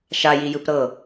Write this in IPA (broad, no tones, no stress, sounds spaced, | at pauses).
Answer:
ʃ a j i j ɯ p ɾ ɤ